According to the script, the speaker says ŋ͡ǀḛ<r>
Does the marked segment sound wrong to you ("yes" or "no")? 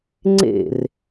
no